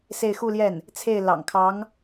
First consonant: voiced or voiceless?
voiceless